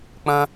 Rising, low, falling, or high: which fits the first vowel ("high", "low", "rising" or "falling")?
high